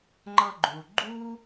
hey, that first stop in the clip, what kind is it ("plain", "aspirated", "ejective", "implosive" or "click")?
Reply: click